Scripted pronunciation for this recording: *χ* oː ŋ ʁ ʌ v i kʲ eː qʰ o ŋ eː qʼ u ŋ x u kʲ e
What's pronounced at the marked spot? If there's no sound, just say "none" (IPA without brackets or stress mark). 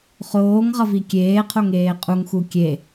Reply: χ